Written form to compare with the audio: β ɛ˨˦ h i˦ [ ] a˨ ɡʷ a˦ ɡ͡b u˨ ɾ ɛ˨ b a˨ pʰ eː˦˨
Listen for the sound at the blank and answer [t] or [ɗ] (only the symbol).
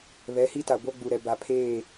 t